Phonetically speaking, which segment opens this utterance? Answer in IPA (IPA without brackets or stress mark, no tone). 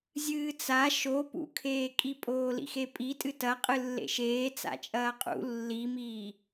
zʲ